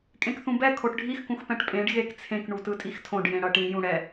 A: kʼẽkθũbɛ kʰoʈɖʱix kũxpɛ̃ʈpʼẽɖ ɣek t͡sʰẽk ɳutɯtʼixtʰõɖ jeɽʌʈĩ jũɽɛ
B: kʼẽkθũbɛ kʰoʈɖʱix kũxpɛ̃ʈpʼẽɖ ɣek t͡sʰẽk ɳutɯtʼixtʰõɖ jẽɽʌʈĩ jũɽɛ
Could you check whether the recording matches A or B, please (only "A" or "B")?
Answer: B